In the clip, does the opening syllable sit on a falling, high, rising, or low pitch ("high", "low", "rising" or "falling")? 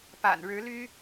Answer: low